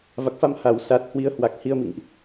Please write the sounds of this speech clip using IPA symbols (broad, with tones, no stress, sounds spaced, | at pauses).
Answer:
v a˨˩ k̚ f a˧ m h a˧˩ w s a˨˩ t̚ h w i˨˦ ə̯ h w a˨˩ k̚ h i˧ ə̯ m ḭ˧˨ ŋ ʔ